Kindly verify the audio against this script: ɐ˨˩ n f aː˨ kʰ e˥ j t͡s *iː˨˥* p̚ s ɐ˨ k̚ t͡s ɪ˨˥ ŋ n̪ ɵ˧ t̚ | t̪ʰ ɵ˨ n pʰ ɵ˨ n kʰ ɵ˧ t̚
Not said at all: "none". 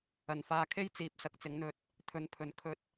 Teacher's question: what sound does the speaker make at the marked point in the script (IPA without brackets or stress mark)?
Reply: iː˨˥